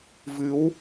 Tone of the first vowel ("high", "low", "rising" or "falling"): rising